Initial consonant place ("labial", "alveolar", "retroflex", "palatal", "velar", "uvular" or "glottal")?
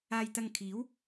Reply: palatal